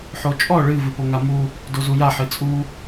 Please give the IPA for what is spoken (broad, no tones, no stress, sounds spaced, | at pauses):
ħ o t͡ʃʼ ɔ ɭ ɨ v ɨ p o ŋ a m u | d o z u j a ħ ɨ t͡sʼ u